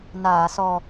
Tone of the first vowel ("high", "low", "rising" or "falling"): low